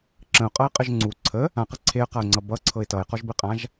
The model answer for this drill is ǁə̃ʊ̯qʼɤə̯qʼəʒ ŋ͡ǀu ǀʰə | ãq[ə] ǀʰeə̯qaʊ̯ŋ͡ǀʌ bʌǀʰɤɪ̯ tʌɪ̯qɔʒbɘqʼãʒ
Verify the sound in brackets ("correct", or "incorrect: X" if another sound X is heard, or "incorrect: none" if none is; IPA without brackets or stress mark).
correct